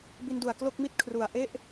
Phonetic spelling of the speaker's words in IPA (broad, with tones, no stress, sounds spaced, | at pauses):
b i˧ n d u˨˩ a̯ k l o˥˩ k̚ m i˥˩ t̚ kʰ r u˨˩ a̯ ʔ e˥˩ ʔ